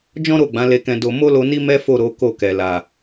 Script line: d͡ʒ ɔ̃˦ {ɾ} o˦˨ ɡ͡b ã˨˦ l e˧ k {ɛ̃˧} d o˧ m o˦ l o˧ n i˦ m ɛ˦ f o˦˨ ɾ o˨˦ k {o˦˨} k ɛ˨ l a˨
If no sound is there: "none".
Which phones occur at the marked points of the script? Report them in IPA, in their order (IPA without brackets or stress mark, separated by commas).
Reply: ɾ, ɛ̃˧, o˦˨